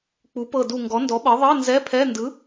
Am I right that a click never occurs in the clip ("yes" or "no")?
yes